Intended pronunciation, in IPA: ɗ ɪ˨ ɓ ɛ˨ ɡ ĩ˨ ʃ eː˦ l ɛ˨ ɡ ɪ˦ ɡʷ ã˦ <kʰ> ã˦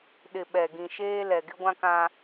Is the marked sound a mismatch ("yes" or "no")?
yes